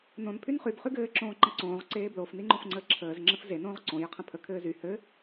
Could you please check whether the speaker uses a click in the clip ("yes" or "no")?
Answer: yes